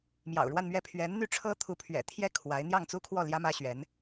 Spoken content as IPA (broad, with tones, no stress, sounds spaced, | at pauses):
m j ɑ̰˨˩ ʊ̯ ɻ w a˥˧ n m ɥ ɛ˥˩ pʰ ɥ ɛ˧˥ n n̪ y˥ ʈ͡ʂʰ ɤ˥ t̪ʰ u˧˥ pʰ ɥ ɛ̰˨˩ t̪ʰ j ɛ˥ kʰ w a˧˥ ɪ̯ n̪ j ɑ˥˩ ŋ t͡s u˥ kʰ w ɔ˥˩ l j ä˥ m ä˥ ɕ ɥ ɛ˧˥ n